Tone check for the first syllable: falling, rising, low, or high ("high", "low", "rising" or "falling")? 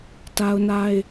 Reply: high